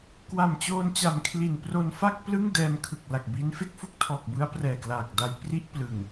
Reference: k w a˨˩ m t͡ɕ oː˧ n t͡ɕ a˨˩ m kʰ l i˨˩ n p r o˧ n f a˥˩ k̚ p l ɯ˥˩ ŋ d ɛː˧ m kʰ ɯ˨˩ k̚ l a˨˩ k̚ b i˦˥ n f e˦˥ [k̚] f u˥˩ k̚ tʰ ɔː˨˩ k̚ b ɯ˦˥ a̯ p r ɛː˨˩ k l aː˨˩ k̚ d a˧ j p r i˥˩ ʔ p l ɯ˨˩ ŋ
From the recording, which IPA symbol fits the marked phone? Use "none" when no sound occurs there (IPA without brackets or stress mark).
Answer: k̚